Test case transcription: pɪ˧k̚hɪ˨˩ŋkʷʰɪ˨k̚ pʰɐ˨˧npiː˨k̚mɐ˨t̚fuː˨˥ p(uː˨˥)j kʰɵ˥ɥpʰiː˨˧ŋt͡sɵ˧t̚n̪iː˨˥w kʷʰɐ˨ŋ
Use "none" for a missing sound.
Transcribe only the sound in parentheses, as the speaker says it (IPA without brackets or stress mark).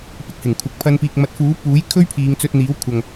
uː˨˥